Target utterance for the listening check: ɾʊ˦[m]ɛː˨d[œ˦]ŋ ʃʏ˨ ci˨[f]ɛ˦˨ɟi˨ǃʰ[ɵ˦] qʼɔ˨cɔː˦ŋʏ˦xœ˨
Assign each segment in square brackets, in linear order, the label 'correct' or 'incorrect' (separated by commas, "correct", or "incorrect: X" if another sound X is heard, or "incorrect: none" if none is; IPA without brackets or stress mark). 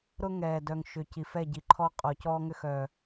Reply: incorrect: ŋ, incorrect: œ˨, correct, incorrect: ɔ˦